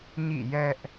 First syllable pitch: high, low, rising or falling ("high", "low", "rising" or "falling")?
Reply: falling